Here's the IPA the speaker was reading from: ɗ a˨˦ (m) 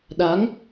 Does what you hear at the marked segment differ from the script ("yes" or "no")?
yes